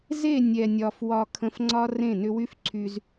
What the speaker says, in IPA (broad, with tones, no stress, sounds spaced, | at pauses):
z e˦˨ nʲ ɛ˨ nʲ ɒ˨ f w ɒ˧ kʰ ə̃˧ f ŋ͡ǀ ɒ˦ r ẽ˦˨ n ʏ˦ w y˦ f ǀʰ y˧ z